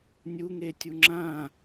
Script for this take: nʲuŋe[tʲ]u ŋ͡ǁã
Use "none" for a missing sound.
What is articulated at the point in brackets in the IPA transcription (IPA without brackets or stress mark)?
tʲ